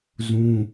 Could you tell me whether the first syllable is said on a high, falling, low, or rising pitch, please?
high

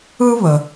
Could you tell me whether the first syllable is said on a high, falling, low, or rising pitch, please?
high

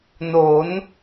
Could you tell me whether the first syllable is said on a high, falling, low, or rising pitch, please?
rising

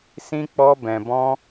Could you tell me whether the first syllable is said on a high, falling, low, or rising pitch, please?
high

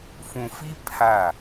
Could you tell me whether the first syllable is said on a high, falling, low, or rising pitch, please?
low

